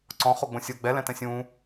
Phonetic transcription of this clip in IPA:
ǀ ɔ̃ χ o ɡ͡b õ sʲ o ɡ͡b ɛ l ɛ̃ t ɛ̃ sʲ ũː

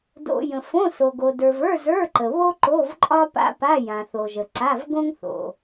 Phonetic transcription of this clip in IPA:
d o̰˨ j ə̃˨ f õ˧˥˧ s o˨ ɡ o˨ d ə˞˨ v ə˞˧˥˧ z ə˞˧˥˧ ǃ ə˨ β o˥ ǃ o˧˥˧ v ǃʼ ɒ˥ p a̰˥ p a˧˥˧ j ã˨ θ o˨ ʒ ə˨ ǀ a˧˥˧ v ɡ õ˥ ŋ θ o̰˨

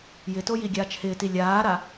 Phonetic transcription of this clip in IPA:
j ɪ t o j i ɡʲ aː t͡ʃ h ɪː t i lʲ aː ɾ a

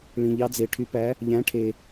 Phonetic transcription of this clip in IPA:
ɭ ĩ˨ ʎ ɑ˨˥ d͡z e˨ ʈʰ y˨˥ p æ˨˥ | ʎ æ̃˨˥ ʈʰ e˨

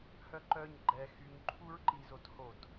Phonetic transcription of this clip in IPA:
h œ ǃ œ ɲ ɡ͡ǃ ɛ x y ɲ ǃʰ u ɹ ǃ i z o t h o t

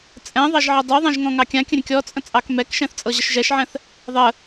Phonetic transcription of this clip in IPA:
t͡sʼ ɛ̃ ðˤ ɑ ʒ ʕ ə dˤ u ðˤ ɛ̃ ʒ ŋ ɔ̃ ŋ ɑ kʲ ã kʲ ə̃ ɾʲ ə̃ kʲ ɔ t͡sʼ ə̃ t͡sʼ ɑ k m ɛ k ʃ ɛ̃ θ t͡sʼ ɤ ʑ ə ʃ ʒ ɛ ʃ ʕ ɛ̃ θ | ðˤ ə

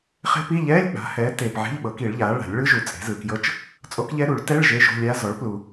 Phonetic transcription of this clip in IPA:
χ e̤˦˥ p i˧˥˧ ʎ ɛː˧˥˧ lʲ k͡p a̤˩˥ h ɛː˩˥ t eː˨ p ʕ e̤˧˥˧ ʎ ɓ ɤ˨˩˦ k i˨˩˦ ɭ ʎ aː˩˥ ɭ a̤˨˩˦ lʲ ɭ ɯ˦˥ ʒ u˨ t͡sʼ e̤˩˥ z ɯ˨ k j ɤ˦˥ t͡ʃ | t͡sʼ o˦˥ k ʎ ɛ˦˥ ɾ u˨˩˦ ɭ t ɛ˧˥˧ ɭ ʒ e˧˥˧ ʒ o̤˧˥˧ lʲ aː˦˥ z ɔ˩˥ ɭ p l u˨

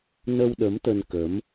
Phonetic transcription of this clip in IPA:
n ə˧ w ɗ ə˨˦ m t̪ ə˧ n k ə˨˦ m

